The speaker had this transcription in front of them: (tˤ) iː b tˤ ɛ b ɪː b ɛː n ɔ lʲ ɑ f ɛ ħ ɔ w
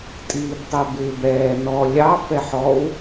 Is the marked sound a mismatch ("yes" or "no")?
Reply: yes